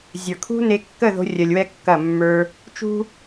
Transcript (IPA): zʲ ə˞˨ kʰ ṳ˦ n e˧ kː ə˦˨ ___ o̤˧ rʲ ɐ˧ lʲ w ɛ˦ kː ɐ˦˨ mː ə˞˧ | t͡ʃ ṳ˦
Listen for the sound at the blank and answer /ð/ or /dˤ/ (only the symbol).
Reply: ð